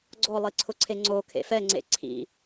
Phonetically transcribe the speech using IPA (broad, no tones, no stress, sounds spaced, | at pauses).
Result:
ɡ͡ǀ ɔ lˠ i ǀʰ ʊ ǀʰ e ŋ͡ǀ o kʰ ḛ f ɛ ŋ͡ǀ ḛ ǀʰ ḭ